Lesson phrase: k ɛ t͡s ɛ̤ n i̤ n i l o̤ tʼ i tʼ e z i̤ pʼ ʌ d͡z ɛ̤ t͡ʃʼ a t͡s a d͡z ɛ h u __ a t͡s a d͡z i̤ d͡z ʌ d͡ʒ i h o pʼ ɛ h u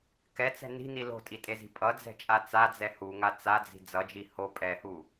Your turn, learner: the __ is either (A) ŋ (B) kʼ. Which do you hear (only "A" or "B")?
A